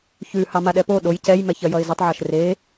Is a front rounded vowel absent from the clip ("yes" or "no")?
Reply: yes